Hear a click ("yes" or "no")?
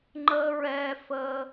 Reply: yes